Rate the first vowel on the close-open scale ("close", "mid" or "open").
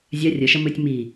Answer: open